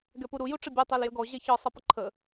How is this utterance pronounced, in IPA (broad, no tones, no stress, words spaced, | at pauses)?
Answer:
ɡɛpuɾu juʈ͡ʂəbʲɛ tˤæljəɡɔ ʑɛçɒ sˤʌpəǃʰə